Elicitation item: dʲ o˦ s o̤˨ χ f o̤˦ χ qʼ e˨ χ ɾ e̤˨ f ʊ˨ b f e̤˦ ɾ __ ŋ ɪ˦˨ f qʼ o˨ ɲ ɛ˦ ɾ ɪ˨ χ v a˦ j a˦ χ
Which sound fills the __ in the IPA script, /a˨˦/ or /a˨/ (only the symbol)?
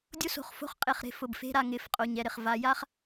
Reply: a˨